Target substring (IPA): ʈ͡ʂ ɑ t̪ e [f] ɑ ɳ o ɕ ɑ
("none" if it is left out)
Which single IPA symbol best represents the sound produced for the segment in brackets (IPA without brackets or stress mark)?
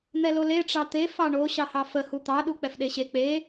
f